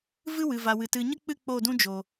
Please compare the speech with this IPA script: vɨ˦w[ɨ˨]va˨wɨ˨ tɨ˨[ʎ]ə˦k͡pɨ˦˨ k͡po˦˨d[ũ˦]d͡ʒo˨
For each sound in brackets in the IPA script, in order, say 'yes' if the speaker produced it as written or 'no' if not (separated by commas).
yes, no, yes